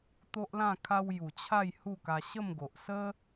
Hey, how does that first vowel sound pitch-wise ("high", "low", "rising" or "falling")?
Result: high